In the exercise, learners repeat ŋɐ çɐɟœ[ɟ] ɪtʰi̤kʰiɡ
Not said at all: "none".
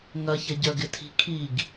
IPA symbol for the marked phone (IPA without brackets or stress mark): ɡ